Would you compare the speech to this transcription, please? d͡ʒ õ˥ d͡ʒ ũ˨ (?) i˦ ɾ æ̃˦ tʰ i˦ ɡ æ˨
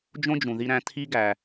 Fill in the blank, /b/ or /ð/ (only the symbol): ð